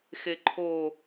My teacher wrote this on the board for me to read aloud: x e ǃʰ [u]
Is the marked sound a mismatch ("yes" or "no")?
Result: yes